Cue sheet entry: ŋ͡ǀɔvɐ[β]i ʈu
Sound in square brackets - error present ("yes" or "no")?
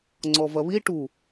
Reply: no